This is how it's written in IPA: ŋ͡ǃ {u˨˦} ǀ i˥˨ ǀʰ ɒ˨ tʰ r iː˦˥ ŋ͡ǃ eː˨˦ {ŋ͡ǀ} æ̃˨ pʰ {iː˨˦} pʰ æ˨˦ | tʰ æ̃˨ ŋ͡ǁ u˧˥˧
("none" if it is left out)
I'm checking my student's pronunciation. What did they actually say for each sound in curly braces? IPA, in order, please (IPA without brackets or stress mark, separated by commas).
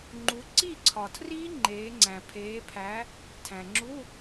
u˨˦, ŋ͡ǀ, eː˨˦